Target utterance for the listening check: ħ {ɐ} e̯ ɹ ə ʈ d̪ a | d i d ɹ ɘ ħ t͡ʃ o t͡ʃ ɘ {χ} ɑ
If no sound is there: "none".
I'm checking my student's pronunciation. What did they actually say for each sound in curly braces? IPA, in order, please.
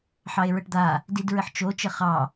ɑ, χ

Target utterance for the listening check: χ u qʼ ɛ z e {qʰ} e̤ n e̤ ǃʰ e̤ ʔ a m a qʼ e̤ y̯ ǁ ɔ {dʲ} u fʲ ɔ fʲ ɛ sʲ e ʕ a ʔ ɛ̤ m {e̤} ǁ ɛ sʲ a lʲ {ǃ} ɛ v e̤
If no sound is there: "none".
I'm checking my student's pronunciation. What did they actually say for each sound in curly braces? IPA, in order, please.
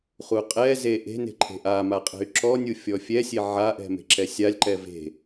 ʔ, nʲ, e̤, ǃ

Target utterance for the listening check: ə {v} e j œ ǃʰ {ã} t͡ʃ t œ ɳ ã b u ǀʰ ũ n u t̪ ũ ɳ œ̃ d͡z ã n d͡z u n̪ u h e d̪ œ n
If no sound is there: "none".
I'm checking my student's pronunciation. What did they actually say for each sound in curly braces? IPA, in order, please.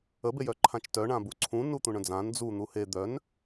b, ã

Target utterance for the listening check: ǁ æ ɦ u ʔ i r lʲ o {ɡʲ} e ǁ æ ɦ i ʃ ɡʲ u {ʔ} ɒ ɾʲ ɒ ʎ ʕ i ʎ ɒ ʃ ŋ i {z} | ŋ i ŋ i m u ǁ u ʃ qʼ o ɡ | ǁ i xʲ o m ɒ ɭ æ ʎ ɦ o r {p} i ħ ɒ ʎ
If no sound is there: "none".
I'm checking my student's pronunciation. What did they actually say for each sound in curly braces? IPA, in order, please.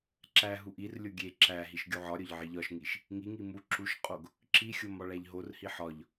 ɡʲ, ʕ, ʃ, h

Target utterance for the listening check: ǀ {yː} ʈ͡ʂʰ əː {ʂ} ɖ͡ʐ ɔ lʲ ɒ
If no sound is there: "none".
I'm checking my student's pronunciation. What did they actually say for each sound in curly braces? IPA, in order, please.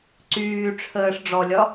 yː, ʂ

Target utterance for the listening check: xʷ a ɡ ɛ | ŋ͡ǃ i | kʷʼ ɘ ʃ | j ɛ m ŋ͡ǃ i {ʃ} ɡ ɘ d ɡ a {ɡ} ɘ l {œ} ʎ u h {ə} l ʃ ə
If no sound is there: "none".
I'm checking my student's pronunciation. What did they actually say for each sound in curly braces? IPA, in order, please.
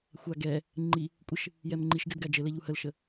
ʃ, d͡ʒ, ɛ, ə

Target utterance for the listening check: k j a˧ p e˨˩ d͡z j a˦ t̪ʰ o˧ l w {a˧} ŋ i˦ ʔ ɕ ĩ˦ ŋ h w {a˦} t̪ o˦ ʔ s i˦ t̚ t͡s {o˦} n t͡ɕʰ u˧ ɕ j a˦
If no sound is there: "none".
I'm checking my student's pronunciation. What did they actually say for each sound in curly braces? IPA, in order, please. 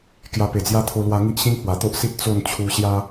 a˧, a˨˩, o˥˧

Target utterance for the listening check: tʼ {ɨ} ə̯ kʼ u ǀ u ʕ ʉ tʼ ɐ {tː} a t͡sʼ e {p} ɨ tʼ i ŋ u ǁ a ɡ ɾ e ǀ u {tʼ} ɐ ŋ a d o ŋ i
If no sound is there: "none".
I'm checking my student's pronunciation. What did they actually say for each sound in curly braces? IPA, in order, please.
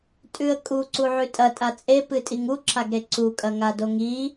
ʉ, tʼ, p, kʼ

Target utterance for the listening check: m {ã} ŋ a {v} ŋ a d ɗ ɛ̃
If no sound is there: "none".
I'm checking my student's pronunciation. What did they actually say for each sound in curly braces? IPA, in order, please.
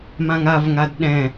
ã, v

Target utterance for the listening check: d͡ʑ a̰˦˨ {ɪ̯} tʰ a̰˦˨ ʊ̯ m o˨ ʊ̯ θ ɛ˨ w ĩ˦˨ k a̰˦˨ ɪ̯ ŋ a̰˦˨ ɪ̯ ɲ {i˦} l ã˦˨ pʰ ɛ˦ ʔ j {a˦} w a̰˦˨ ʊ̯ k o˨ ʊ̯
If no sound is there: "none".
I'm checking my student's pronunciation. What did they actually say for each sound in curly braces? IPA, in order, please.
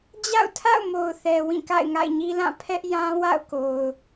ʊ̯, i˦, ã˦

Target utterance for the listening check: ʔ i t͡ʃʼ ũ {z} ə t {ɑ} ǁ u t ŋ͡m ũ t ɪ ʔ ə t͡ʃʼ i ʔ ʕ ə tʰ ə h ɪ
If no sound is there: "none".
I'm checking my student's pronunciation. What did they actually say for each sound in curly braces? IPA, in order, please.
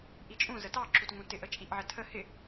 z, ɑ

